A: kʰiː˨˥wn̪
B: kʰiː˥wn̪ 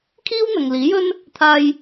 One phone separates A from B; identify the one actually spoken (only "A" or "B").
B